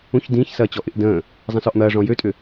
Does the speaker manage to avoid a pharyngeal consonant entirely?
yes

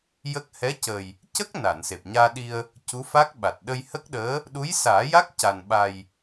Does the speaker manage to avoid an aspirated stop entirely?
yes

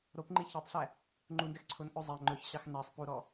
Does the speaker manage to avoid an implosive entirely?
yes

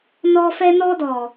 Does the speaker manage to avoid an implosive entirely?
yes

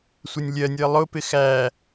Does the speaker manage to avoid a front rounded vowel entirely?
yes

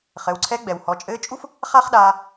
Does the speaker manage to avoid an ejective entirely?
no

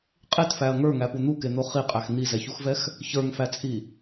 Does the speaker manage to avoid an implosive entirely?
yes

